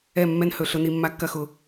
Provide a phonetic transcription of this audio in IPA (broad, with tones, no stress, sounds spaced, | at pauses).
ɛ˦˨ mː ɛ˧ n h ɵ˨ ɬ ʊ˧ n i˧ mː a˧ kː ɐ˧ x ʊ˨